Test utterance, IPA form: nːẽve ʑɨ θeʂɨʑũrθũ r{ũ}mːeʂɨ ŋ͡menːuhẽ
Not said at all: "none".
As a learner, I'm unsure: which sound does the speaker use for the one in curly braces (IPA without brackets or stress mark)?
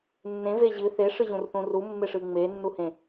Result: u